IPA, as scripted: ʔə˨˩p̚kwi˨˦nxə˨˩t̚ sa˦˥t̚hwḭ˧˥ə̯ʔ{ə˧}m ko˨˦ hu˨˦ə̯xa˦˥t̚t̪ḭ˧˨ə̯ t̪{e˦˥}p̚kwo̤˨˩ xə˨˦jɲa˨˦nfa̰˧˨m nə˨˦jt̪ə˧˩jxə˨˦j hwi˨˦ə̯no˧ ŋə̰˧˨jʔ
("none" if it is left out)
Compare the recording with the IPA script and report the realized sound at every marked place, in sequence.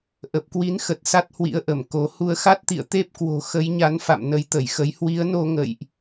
ə˧˩, e˦˥

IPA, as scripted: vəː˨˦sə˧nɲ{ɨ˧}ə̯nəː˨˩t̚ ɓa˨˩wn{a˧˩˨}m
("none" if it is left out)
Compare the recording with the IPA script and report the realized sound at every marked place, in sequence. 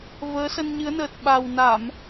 ɨ˨˦, a˧˩˨

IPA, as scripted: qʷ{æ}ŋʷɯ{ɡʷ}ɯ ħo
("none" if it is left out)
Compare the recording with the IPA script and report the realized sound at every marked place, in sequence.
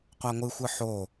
a, xʷ

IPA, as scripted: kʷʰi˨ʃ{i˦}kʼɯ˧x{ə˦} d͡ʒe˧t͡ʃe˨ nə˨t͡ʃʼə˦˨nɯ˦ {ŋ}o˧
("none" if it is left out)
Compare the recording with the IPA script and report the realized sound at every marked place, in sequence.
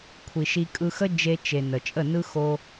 i˧, ə˦, x

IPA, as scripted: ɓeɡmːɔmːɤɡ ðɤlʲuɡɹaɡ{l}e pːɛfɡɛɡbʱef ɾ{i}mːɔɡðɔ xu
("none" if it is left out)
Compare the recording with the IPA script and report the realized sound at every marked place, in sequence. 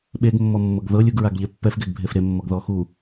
ʎ, e

